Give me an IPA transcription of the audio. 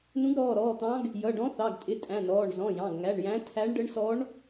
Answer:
n ũ˧˥ ɡ ɾ ɔː˩˧˩ ɾ ɔː˩˧˩ t̪ ɑ̃˧˥ ɡ | j ʌ˩˧˩ ɖ ɔ̃˧˥ θ ɑ˩˧˩ ɡ tʼ ɪ˩˧˩ tʼ æ̃˩˧˩ n ɔː˩˧˩ ɳ z ɔ̃˩˧˩ j ɑ̃˩˧˩ ɡ ŋ æ˩˧˩ ɳ j æ̃˧˥ tʰ æ˧˥ ɳ ɖ ə˧˥ ɳ s ɔ˧˥ ɳ

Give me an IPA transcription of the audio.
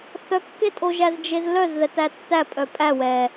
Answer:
θ œ kː e tʼ o ʒ æ z d͡ʒ e z l œ z ð ɛ t æ tː æ pʼ œ pʼ æ w ɛ

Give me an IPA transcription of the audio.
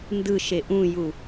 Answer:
n d ɯ ʃ e ʔ ũ j u

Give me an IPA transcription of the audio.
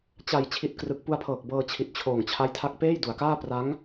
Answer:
t͡ɕ a˨˩ j t͡ɕʰ i˨˩ t̚ k r ɯ˨˩ k̚ p u˧ a̯ pʰ ɤː˨˩ k̚ b ɤː˧ t͡ɕʰ i˨˩ t̚ t͡ɕʰ oː˨˩ ŋ t͡ɕʰ a˦˥ j tʰ a˦˥ k̚ p eː˥˩ j d u˨˩ a̯ k aː˥˩ p r a˦˥ ŋ

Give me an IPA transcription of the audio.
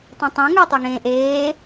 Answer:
tˤ õ tˤ õ ŋ ə˞ tˤ ʉ ŋ ẽː ʔ eː

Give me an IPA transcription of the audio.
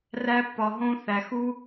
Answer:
r æ˧ pː ɒ˨ ɦ õ˧ θ æ˨ x u˦

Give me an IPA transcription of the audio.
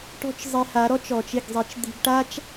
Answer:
ʈ ɔ̤˥ t͡ʃ zˤ e˧ h a˩˥ ɾ ɔ˥ t͡ʃ ɔ˩ t͡ʃ ɪ˥˩ ɡ zˤ i˩˥ t͡ʃ d̪ i̤˧ ɡ ʈ a˥ t͡ʃ

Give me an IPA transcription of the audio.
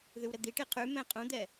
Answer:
ð y w ɾ ə d̪ i ʈ i qʰ ʉ m ɛ̃ qʼ ũ d̪ ɛ

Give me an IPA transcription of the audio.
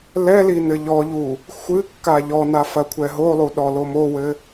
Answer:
l ɛ l i n ɘ ʎ ɔ ʎ u | xʷ ɨ kː a ʎ ɔ n a f ɐ kʷʰ ɛ ɦ o lˠ u ɗ ɔ l o m o w ɘ

